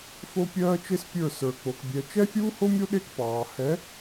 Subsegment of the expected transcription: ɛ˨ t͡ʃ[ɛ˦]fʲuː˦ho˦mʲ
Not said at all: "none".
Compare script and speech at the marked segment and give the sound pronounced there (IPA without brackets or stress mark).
ɛ˦